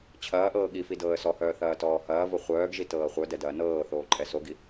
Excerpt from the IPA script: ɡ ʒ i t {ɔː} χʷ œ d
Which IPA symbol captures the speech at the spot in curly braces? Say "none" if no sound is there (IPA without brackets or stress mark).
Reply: ɤː